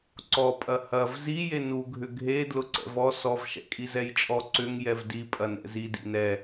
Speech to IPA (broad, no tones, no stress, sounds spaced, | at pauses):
ǀ ɔ pʼ ɐ h ɐ v z i j e n u ɡʱ ʏ ɡʱ e d l ʊ ǀ ɛ̰ v ɔ s ɔ v ʃ ɛ̰ kʼ i z ɛ j t͡ʃʼ ɔ ǀ ʏ ŋ j ɛ v d i pʼ ɐ n ɛ̰ z i d ḭ n ɛ